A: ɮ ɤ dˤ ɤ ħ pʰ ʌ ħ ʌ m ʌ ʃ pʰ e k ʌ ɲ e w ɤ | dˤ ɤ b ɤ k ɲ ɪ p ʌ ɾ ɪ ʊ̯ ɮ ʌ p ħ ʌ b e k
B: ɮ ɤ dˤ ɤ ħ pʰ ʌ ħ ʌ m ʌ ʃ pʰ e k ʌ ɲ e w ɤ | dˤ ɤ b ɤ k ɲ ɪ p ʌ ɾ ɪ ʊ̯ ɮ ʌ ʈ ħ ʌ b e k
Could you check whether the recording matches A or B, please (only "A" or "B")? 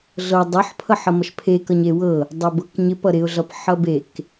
A